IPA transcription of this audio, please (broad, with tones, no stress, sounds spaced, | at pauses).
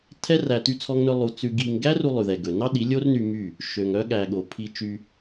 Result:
tʰ ɛ˦ r æ˧ t y˦ t͡sʰ ɔ˦ ŋ n ɵ˦ lˠ u˧ t͡s ʉ˧ ɡ i˧ ŋ ɡ æ˦ r u˧ lˠ ʉ˨ ð ɛ˨ ɡ ɵ˨ n ɑ˦ ɗ i˨˦ lʲ o˦ r n y˧ m y˦˨ | ʃ ø˨ ŋ œ˦ ɠ æ˨ ɠ o˨ pʰ i˧ t͡ʃ y˧